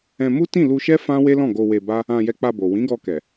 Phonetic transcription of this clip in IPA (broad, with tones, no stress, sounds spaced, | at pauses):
ɛ̃˧ m u˦ t ĩ˦˨ l u˧ ʃ ɛ˦ f ã˦ w e˦ l ɔ̃˦˨ ɡ o˧ w e˧ b a˦ | ã˧ j ɛ˧ k͡p a˧ b o˨ w ĩ˨˦ ɡ ɔ˧ k ɛ˨